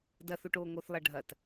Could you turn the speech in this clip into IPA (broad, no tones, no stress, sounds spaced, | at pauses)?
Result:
d ɐ θ o ʈ oː ŋ o θ lˠ ɐ ɖʱ ɐ t